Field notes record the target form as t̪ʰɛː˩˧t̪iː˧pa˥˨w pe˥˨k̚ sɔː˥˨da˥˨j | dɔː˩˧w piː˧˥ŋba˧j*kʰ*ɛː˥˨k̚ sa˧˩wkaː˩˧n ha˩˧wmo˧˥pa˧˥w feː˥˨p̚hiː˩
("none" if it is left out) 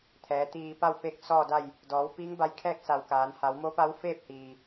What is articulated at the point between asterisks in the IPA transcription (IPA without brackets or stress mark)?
kʰ